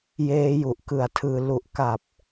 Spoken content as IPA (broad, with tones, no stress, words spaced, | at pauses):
jeː˦˥ju˨˩ʔkɯ˨˩a̯tʰɯː˧ lu˨˩ʔka˨˩p̚